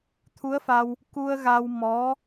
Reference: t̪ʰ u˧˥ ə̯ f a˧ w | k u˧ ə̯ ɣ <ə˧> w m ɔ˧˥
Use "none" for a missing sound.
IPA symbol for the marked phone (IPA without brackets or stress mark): a˧